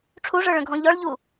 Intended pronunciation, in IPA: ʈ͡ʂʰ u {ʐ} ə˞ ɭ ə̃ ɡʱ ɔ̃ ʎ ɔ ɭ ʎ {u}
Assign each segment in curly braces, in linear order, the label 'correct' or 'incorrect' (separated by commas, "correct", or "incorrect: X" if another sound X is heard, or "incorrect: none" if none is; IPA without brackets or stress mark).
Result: correct, correct